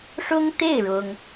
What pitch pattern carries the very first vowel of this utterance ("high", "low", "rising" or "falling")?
high